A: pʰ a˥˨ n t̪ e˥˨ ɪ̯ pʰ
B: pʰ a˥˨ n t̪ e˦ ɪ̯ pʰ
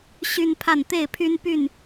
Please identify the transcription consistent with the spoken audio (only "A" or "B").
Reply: A